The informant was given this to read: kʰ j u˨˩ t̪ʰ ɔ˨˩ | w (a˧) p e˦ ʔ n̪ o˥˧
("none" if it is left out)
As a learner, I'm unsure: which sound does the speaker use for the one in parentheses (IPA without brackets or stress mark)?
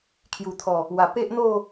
a˨˩